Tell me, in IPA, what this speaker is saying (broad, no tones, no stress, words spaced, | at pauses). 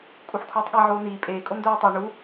kʼuħkʰuːtˤɠi ʕoːniː pʼeː kʼondoːtˤi ɳu